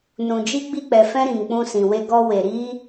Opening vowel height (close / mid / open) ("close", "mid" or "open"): close